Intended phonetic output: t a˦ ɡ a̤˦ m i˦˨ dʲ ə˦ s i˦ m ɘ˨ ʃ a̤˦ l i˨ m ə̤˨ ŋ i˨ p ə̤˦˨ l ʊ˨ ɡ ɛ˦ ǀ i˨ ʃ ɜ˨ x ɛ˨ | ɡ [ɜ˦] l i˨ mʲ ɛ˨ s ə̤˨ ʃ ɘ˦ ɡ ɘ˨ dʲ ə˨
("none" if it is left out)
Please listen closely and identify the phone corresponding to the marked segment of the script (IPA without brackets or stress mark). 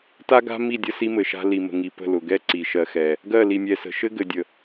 ɜ˦˨